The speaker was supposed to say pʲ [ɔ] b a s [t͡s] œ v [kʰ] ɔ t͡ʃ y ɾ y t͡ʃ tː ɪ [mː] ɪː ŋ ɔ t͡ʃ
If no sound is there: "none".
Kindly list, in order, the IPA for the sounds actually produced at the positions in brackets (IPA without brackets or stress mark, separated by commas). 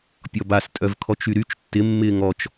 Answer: ɔ, tʼ, kʰ, mː